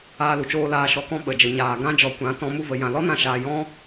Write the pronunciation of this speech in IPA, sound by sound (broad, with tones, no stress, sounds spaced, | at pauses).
aː˧ l u˨ t͡ʃ oː˧ l aː˨ ʃ ɔ˨ k ɔ̃˧ ɓ ə˨ d͡ʒ ə˨ ɲ aː˨ ɡ ã˦ d͡ʒ ɔ˨ kʷ ã˨˦ t ɔ̃˧ m u˧ v ə˨ j ã˨ l ɔ˦ n ã˧ ʃ aː˧ j ɔ̃˦